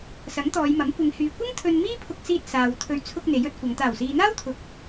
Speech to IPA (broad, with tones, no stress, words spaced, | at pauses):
sɐ˨˥ŋt̪ɔː˨˧jmɐ˨˥m kʷɪ˨˧ŋ hyː˨kʷɐ˥ŋ t̪ʰɵ˧n miː˥pʰʊ˧k̚siː˧t̚ saː˨wt̪ʰɵ˧ɥ t͡sʰʊ˧k̚ n̪e˨˥jɵ˨˥t̚kʷɐ˨˧ŋ t̪aː˨˩wsiː˨n̪aː˥wt̪ʰʊ˨k̚